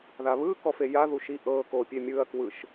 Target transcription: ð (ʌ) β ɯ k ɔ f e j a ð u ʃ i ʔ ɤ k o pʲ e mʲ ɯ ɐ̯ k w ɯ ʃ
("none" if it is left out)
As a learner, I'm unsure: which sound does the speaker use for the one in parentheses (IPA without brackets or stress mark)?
a